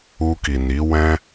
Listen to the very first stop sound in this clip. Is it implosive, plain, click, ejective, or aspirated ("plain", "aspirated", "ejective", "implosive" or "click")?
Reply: plain